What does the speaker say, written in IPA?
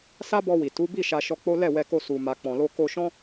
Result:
s a˦ b ɔ˧ w i˨ t u˨˦ b i˦˨ ʃ a˧ ʃ ɔ˧ k͡p o˦ l ɛ˦˨ w ɛ˧ k o˧ s u˨ m a˨ k͡p ɔ̃˨ l o˧ k o˧ ʃ ɔ̃˦

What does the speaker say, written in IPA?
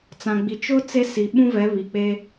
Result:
t͡s ã˨ ɡ͡b i˨ t͡ʃ ʊ˦ t͡s e˦ s i˨ ɓ ũ˦ v ɛ˨˦ β i˨ k͡p e˦

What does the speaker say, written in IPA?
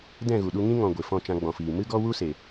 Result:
d ɛ̃˦˨ ɣ u˨ ɗ u˧ ŋ ĩ˦ ŋ ɔ̃˨ ɡʷ e˨ f ɔ̃˦˨ t͡ʃ ã˧ ɡ͡b ɔ̃˨ f iː˨ m ɨ˦ ɡ ɔ˦ w u˦ s e˨

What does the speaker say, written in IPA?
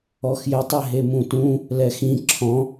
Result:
ɔ x j ɘ tˤ ɛ ɦ e m ũ t ũ | l ɛ x ĩ ǁʰ ɔ̃

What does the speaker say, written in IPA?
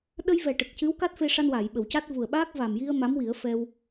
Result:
ɗ ə˧ j v ɛ˨˩ ʈ ə˨˩ k̚ c ɨ˧˥ w k a˦˥ t̚ f e˧ ʂ a˧ n w aː˨˩˨ j ɓ ə˨˩˨ w c a˦˥ t̚ v u˨˩ ə̯ ɓ aː˦˥ k̚ v a˨˩ m j i˧ ə̯ m a˧˥ m w i˨˩˦ ə̯ f ɛ˧ w

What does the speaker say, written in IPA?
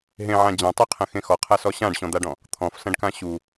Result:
ɦ ẽ ʕ ã d͡ʑ ɐ̃ tˤ e qʰ ɐ̃ x ẽ x ɔ qʰ a s ɔ ɕ ã ɖ ɕ ɔ̃ d̪ a ɖ ɔ̃ | t̪ʰ ɔ̃ f s ɐ̃ ɖ k ã ɕ u

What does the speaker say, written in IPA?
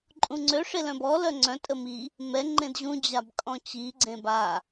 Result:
ǃʼ ũ ŋ͡ǀ ø ʂ e l œ̃ b ɔ l œ ŋ͡ǀ œ̃ tʼ ə m i | m ɛ ŋ͡ǃ ẽ d ʑ ũ d͡ʑ a b kʼ ɔ̃ t͡ɕ i ɡ͡ǀ ẽ b a

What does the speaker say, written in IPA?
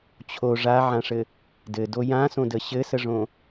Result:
t͡ɕʰ o ʐ a ʕ ã ʂ ɘ | d ɘ d o j ã s õ d ə ɕ ɘ s ə ʐ õ

